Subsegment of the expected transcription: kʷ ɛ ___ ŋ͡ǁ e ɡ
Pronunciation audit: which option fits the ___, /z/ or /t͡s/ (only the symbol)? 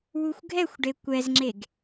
z